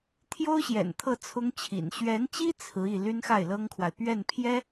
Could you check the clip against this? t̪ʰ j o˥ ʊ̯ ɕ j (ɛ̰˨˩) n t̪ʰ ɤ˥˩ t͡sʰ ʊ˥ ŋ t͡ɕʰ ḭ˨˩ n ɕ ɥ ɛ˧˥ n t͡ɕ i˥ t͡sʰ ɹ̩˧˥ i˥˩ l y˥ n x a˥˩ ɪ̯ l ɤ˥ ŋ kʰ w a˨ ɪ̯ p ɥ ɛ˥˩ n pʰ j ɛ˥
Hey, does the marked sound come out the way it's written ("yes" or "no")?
yes